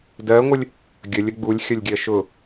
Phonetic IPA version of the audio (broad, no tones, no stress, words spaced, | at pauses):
dɜŋʷəlʲ | ɡʲəlʲə ɡ͡bulʲxʲʌlʲɡʲɜ ʃʊ